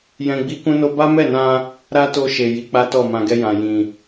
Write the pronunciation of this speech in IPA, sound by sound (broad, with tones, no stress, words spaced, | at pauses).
jɛ̃˧ɡ͡bi˦ kũ˦no˦ ba˦mɛ˦˨nã˧ | ɾa˦to˧ʃe˨ ji˨˦k͡pa˦tɔ˦˨ mã˨ɡɛ˧ jã˨jĩ˨